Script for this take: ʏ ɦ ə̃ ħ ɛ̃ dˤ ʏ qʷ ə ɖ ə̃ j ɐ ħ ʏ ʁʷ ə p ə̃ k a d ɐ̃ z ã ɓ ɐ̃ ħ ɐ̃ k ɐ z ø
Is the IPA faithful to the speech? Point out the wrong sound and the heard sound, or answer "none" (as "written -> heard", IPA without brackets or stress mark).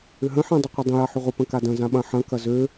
ɖ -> dˤ